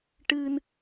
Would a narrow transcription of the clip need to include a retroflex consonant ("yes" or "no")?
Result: yes